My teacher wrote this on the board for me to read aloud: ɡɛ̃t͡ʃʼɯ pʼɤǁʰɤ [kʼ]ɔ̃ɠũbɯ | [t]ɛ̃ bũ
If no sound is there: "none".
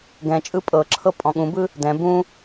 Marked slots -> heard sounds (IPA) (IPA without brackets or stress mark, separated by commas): pʼ, d